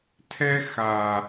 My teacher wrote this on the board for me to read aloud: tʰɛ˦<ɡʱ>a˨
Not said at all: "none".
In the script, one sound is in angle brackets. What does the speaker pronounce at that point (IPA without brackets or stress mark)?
x